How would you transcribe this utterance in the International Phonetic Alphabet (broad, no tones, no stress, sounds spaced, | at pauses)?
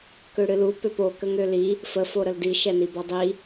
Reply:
k ø ɽ ɨ l u p ø p o k ə ŋ ø l i | f ə f o ɾ ə l d i ʃ ɛ n i b ɔ dˤ i